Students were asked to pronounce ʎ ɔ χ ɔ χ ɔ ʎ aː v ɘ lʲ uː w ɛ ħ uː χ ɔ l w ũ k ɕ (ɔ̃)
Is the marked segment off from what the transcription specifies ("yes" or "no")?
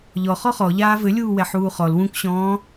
yes